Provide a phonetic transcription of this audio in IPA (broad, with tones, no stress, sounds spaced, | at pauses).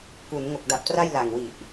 k u˩˦ n ŋ o˨˩ k̚ d a˨˩ p̚ t r a˥˩ j l a˨˩ ŋ w i˨˩ ʔ